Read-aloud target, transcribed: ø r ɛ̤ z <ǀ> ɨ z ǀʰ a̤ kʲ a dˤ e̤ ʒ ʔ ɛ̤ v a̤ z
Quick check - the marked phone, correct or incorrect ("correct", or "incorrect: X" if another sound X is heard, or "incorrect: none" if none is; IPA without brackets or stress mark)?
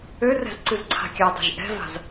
correct